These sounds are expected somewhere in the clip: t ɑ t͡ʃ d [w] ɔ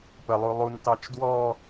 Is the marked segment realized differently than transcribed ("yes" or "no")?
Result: no